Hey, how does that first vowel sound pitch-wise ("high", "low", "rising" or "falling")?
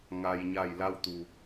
low